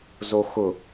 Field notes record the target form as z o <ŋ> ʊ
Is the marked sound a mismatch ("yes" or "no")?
yes